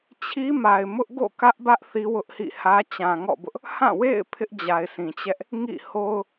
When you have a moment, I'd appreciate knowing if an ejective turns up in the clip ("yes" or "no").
no